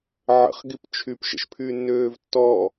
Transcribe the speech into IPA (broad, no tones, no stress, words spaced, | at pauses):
ʕə̰χ ɡipt͡ʃʰyp ʃə̰ʃpʰyːnːøːvtːɔ